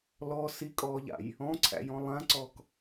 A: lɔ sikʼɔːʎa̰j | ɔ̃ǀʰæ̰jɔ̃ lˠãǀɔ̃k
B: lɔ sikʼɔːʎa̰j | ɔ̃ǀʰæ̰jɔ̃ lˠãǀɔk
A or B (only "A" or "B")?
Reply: B